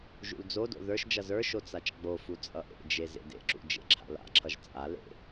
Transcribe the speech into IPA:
ʒ ṵ l d͡z o d o̰ ð ə˞ ʃ d͡ʒ ʌ z ə˞ ʃ o t͡s a t͡ʃ ɡ͡b o f u t͡sʼ ʌ ʔ ḛ d͡ʒ e z ḛ d ḛ ǁ ṵ d͡ʒ ḛ ǁʰ a̰ l a̰ ǁʰ ʌ ʒ t͡sʼ a l ḛ

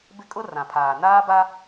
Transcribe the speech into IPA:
b ɪ˦ kʼ ʊ˦ r ã˨ pʰ aː˨ n aː˦ b a˦

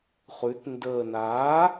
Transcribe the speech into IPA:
χ ʉ˩˧ t n d əː˨˩ n a˩˥

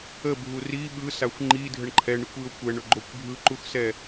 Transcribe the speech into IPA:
ə bʱ u r i ɓ ɯ s a xʷ ŋ͡ǃ i dʱ ə ɳ ǃʰ ɛ ɳ ɯ kʷ i ʊ̯ kʷ ɛ ɳ ɵ ɡ͡ǃ o kʷ bʱ ɯ ǃ u x s ɛ

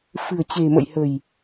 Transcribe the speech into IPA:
f ɨ̤˨˩ ə̯ t͡ɕ e̤˨˩ m ə̰˧˨ j h ə̤˨˩ j

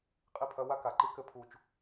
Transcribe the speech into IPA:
qʼ i˥˩ pʰ ɐ˧˥˧ w a˥ k a˩ ǃ i˥ k ɘ˥˩ pʰ u˥˩ t͡ʃ

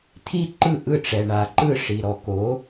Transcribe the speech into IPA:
t̪ʰ i˥ ǃ ɯ˥˩ ʔ ɯ˥˩ ʈ͡ʂ ɛ˩ ɳ a˩ ǃ ɯ˥˩ ʂ i˩ ɾ ɔ˩ k o˩˥

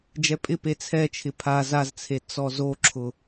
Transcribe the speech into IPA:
d͡ʒ ɛ pʼ ɪ p e t͡sʰ ɛ t͡ʃʰ ɪ pʰ a z a z t͡sʰ e t͡s ɔ z o ǁʰ ʊ

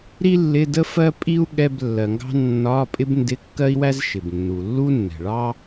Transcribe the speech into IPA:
ɾ i˥ lː ɪ˧˥˧ d ə˥ f ɜ˥ pʼ i˥ u̯ ɠ ɛ˧˥˧ b lː ɜ˩ ŋ ɡ ɑ̤˥ nː ɒ˧˥˧ pʼ ɪ˥ b n d ɪ˧˥˧ kː ɜ˥ i̯ w æ˥ z ʃ ɪ˩ b nː u˩ lː u˥ nː ɛ̤˩ ɭ ɑ˥

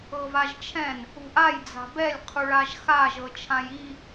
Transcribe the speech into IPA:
ɤ v a ʒ t͡ʃʰ ɛ̃ n | ṳ ʔ a j d͡z a̤ b ɛ lʲ qʰ u ɭ a ʒ x a ʒ ɤ t͡ʃʰ ã j i

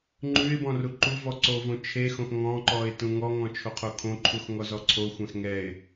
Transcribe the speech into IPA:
ŋ͡ǃ ʉ ɪ̯ b ɔ̃ r u ǃ u v ɔ ǀ o v õ t͡ʃʰ e x õ x ŋ ɔ̃ ǃ ɔ ɪ̯ t ũ ŋ ɔ ŋ ɔ̃ t͡ʃʰ o qʰ o kʰ õ ǃʰ u x ŋ ɔ z ɔ ǀʰ o xʷ ɛ̃ x ŋ ɛ ɪ̯

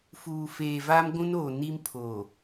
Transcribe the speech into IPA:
f uː˨ f eː˨ v a˦ m ɡʷ ũ˦ n oː˨ n i˦ m pʰ oː˨

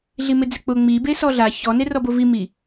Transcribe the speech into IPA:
ɮ i m ɪ d͡z ɪ k͡p ʊ ŋ͡m i b e s ɔ ɮ a ç ɔ n e r ɔ b o v i m i

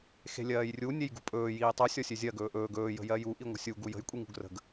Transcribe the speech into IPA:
x e̤ lʲ ɜː j rʲ u nʲ e j ɡ ṳ pʼ ɵː j iː tˤ u sʲ ɔ sʲ ø zʲ ɜ ɡ ɵː ʔ ɵː ɡ ɵː j ə̤ j ɜ j u ʔ i ŋʷ ə̤ sʲ u ɡ u j ə̤ j kʷʼ i ŋ ṳ ɡ r ə̤ ɡ

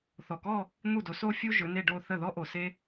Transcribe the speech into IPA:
θ ɔ˨˩ k ɔ˥˧ | n̪ u˥˩ d o˨˥ s o˥ fʲ u˥ ʒ ɵ˨˥ n e˥˧ ɖ o˥˧ θ ə˥˩ ð ɔ˥ ʔ o˨˩ s e˥

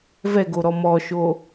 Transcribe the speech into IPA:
v ɛ ɡ o ɾ ɔ m ɔ ʃ o

